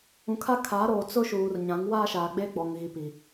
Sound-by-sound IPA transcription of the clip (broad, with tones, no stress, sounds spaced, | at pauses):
ũ˨ kʰ a˦ kʰ a˨˦ ɾ oː˨ t͡s ʊ˦ ʃ uː˨ r ɲ ã˨˦ ŋ w aː˦ ʃ aː˨ ɡ͡b eː˦ ɡ͡b ɔ˨ ŋ ɣ i˨ p i˨